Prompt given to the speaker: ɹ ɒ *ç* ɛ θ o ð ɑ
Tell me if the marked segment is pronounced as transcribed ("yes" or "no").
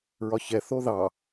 yes